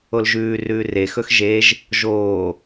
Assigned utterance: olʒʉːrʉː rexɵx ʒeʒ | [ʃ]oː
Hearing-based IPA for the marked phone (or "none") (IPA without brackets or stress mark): ʒ